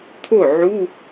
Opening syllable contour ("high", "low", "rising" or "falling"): falling